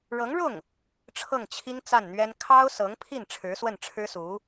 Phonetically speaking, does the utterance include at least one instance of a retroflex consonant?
yes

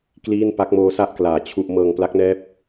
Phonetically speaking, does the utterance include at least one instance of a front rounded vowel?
no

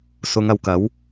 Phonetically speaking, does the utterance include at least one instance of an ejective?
no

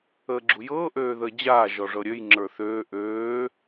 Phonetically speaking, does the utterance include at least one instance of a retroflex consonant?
yes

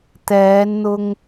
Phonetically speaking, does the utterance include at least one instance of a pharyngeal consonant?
no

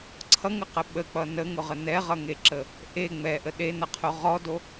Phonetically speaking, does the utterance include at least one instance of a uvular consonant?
yes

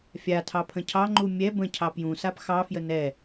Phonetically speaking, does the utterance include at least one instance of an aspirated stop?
yes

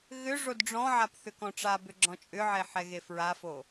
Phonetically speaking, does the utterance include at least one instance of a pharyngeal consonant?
yes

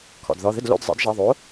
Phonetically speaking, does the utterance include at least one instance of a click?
no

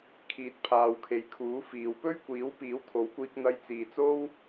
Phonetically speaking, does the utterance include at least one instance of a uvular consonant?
no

